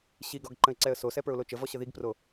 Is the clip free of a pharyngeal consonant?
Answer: yes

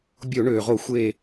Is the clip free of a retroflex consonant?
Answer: no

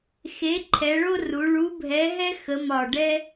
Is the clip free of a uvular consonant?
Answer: yes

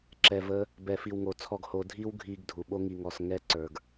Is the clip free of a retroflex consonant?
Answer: yes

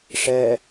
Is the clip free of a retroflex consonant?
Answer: no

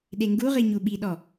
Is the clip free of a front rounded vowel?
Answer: yes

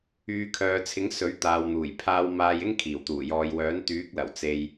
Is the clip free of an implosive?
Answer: yes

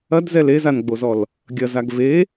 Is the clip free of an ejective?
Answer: yes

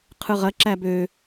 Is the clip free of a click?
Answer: no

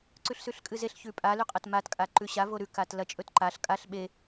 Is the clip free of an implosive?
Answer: no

